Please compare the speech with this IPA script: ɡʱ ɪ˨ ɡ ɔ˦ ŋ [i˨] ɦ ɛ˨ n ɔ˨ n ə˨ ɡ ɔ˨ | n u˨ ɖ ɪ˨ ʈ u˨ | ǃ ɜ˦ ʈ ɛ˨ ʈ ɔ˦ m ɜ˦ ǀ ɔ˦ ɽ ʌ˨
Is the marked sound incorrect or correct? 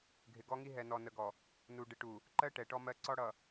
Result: incorrect: i˦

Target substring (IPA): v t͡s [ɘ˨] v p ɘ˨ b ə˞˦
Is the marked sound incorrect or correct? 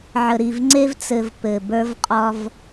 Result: correct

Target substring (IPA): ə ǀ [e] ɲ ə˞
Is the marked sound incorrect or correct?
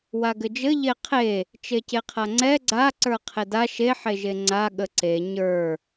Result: correct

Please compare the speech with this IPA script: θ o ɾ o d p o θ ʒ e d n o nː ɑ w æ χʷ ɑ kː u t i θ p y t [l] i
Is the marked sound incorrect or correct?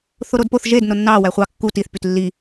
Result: incorrect: lː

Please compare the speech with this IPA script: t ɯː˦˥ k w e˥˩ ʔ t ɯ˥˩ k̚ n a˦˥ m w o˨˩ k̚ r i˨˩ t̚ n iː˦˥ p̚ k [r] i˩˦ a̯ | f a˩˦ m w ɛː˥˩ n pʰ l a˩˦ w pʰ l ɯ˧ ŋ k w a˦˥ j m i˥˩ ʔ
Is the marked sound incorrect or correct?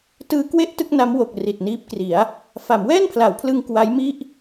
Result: correct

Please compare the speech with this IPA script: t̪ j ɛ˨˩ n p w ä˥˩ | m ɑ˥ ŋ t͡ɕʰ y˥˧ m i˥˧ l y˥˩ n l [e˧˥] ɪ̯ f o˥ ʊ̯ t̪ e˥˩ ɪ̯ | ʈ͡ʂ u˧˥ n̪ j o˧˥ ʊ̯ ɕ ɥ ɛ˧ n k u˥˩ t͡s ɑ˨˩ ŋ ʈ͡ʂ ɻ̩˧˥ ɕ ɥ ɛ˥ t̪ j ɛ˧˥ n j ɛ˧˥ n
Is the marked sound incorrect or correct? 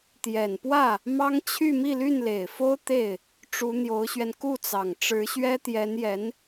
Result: incorrect: e˨˩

